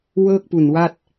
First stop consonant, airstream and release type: plain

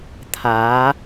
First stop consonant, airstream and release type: aspirated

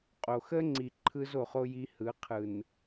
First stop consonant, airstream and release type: ejective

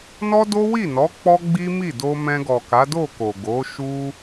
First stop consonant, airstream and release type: plain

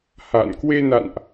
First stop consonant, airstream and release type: plain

